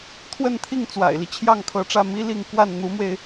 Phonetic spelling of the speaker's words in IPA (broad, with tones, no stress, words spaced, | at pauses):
t̪ʰwə˥˧nt̪ʰi˥˩ŋ t͡swa̰˨˩ɪ̯li˦ t͡ɕʰjɑ˥˩ŋkʰɤ˧˥ʈ͡ʂä˥˩ mi˥li˥˧ŋ kwa˥˩nn̪u˧˥mwe˧ɪ̯